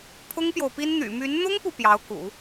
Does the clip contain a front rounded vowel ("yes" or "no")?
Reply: yes